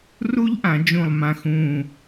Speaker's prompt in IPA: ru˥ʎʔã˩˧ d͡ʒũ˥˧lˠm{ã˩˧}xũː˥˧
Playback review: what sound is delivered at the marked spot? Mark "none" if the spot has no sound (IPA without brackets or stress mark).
ã˥˧